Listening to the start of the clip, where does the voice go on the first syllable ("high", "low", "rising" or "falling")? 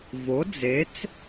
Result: rising